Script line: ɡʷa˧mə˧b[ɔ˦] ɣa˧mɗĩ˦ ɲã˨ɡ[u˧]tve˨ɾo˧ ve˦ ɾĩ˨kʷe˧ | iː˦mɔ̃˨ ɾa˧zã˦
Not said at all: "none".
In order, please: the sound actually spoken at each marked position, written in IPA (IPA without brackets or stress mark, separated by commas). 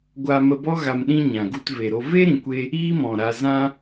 ɔ˦, u˧